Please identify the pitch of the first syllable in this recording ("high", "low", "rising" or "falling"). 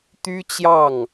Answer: high